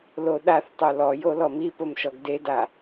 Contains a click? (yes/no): no